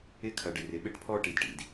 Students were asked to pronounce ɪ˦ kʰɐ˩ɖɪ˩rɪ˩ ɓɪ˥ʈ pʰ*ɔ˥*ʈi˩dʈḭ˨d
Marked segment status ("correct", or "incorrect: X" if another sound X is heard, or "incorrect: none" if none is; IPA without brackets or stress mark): correct